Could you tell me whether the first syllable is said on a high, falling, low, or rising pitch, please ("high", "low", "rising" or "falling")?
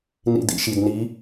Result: low